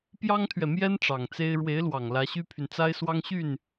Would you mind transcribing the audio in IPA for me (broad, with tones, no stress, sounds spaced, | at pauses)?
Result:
p j ɑ˥ ŋ t̪ʰ ɥ ɛ˨ m j ɛ˥ n ʈ͡ʂ ɑ˨˩ ŋ t͡s e˥ ɪ̯ ɻ w e˧˥ ɪ̯ l w ɑ˨˩ ŋ l ä˧˥ ɕ y˥ pʰ y˨ n t͡s a˥ ɪ̯ s w ɑ˥ ŋ ɕ y˥˩ n